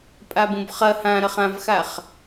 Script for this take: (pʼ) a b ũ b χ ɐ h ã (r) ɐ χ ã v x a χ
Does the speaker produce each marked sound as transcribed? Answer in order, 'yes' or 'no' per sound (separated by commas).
yes, no